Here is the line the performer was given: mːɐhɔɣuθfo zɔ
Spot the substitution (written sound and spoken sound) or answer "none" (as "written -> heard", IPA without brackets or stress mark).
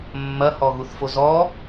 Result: none